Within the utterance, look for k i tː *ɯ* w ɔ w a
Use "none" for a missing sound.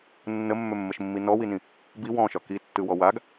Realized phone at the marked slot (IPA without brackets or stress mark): ɯ